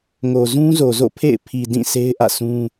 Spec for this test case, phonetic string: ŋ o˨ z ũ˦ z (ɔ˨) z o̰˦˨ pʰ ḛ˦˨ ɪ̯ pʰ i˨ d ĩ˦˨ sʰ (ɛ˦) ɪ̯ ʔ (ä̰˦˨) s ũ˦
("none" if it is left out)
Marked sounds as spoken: o˨, e˦, ä̰˦˨

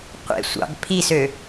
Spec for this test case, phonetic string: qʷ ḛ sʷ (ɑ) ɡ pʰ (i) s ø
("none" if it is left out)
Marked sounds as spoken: ɑ̰, i

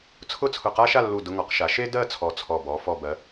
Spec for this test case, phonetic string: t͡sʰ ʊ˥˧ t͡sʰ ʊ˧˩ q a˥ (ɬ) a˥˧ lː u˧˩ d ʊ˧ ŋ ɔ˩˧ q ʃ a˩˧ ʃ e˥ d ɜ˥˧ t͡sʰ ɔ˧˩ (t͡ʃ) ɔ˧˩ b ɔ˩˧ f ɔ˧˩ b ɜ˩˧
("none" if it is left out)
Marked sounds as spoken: ʃ, t͡sʰ

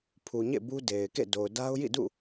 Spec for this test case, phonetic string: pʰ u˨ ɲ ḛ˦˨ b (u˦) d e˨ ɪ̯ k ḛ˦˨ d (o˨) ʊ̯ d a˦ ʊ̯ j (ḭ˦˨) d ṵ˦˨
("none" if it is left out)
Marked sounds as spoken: u˦, o˨, ḭ˦˨

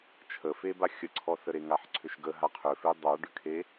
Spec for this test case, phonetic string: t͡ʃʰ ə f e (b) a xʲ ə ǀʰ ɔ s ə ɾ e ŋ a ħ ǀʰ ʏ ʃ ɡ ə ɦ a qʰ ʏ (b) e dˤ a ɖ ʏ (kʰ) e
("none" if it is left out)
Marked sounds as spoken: b, f, kʰ

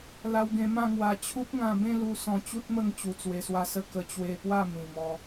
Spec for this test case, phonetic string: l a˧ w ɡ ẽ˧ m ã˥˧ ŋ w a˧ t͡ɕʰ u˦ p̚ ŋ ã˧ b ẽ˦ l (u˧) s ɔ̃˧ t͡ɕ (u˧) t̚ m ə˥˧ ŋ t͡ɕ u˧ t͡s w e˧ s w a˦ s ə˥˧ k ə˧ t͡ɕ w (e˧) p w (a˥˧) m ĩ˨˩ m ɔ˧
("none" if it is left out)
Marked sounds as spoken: u˧, u˦, e˧, a˥˧

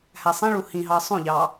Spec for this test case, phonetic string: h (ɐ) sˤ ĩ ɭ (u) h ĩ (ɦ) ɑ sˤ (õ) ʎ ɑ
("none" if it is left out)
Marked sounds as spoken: æ, u, ɦ, õ

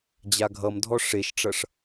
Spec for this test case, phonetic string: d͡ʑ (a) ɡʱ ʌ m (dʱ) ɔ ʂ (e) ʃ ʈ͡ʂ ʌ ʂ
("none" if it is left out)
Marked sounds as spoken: a, dʱ, e

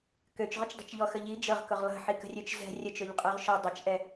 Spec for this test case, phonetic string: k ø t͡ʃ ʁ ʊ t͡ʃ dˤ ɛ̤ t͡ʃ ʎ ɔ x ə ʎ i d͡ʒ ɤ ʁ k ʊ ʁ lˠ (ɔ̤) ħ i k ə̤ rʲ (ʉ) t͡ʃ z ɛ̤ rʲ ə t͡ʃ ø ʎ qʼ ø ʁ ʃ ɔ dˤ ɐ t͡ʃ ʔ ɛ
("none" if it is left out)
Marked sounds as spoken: ə̤, ø

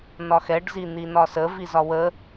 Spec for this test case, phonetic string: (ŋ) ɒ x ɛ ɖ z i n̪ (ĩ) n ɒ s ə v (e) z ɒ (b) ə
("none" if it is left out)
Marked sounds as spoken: n, i, i, w

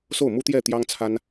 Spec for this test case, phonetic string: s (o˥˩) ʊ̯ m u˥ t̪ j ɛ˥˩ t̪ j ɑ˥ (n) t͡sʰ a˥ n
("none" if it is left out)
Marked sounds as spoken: o˥˩, ŋ

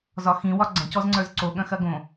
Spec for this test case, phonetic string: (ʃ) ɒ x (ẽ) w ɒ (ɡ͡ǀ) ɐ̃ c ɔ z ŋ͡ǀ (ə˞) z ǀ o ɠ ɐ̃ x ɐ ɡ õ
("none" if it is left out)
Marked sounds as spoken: z, ĩ, ɡ͡ǀ, ə˞

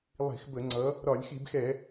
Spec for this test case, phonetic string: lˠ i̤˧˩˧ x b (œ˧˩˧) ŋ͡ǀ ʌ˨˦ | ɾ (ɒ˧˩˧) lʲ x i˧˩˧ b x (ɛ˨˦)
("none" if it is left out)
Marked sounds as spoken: ə˧˩˧, ɒ˧˩˧, ɛ˧˩˧

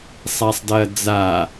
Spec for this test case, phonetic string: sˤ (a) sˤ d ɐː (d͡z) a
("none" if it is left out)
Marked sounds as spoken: a, d͡z

